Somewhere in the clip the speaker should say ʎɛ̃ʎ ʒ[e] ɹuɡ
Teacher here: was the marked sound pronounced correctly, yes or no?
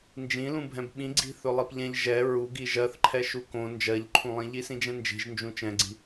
no